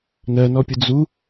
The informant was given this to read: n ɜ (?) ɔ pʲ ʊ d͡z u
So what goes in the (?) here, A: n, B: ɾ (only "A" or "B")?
A